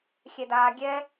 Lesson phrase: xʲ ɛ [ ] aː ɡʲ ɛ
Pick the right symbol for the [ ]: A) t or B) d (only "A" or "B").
B